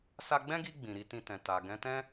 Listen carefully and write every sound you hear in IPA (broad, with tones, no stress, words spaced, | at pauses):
sa˧ɡ͡bɛ̃˦ɡi˧ ɡ͡bĩ˨ɾi˨˦tĩ˧tɛ̃˨ ta˨ ɡɛ̃˨˦tɛ̃˦